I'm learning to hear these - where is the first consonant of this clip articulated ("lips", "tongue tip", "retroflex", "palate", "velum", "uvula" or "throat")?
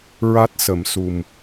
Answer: tongue tip